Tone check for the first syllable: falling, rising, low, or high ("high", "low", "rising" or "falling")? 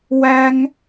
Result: high